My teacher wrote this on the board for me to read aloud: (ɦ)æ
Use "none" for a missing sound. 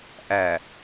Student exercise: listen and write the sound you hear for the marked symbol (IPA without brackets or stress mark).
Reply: ʔ